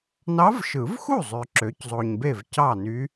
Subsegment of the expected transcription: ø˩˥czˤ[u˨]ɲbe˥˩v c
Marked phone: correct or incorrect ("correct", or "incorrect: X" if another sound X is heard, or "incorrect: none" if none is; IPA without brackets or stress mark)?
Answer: incorrect: o˨